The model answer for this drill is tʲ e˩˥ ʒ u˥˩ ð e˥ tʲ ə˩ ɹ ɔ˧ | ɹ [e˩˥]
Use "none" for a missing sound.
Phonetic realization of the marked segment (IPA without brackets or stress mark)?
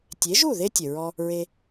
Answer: e˧